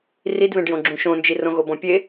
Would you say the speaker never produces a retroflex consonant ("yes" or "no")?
no